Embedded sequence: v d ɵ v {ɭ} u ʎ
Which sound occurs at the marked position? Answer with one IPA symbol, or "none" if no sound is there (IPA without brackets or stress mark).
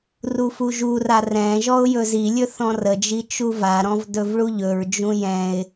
ɭ